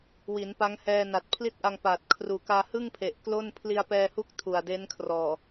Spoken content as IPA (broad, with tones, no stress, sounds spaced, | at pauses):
w i˩˦ n p a˦˥ ŋ h ɛː˧ n a˨˩ t̚ pʰ l i˥˩ t̚ ʔ a˧ ŋ p aː˨˩ t̚ kʰ r uː˨˩ k aː˧ h ɯ˥˩ ŋ pʰ e˨˩ ʔ k l o˥˩ n pʰ l i˧ a̯ p ɛː˧ h u˦˥ k̚ tʰ u˨˩ a̯ d e˦˥ n kʰ r ɔː˨˩